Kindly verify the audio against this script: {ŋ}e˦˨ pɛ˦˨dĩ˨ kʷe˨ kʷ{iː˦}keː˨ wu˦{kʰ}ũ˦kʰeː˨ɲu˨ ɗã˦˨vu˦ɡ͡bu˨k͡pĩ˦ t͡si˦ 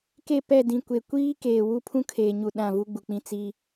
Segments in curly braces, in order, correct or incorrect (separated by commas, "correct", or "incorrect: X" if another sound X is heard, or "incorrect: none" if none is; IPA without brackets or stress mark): incorrect: k, correct, incorrect: pʰ